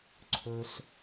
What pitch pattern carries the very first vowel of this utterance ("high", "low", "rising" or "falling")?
low